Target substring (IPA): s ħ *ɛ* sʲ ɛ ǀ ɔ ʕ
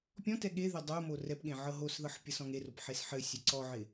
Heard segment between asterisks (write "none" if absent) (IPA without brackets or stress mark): ɘ